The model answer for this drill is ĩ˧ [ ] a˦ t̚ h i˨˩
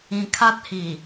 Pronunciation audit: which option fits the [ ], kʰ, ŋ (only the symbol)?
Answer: kʰ